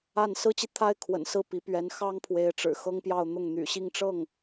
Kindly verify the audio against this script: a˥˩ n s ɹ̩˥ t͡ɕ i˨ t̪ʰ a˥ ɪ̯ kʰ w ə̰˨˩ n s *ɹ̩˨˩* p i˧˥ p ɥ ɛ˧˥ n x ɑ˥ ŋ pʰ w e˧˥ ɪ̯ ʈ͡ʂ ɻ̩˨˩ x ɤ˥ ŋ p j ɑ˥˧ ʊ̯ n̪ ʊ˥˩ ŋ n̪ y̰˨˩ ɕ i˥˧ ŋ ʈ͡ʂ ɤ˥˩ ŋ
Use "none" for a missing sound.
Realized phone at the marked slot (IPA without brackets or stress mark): ɹ̩˥˩